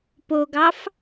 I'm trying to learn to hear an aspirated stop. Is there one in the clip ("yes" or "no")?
no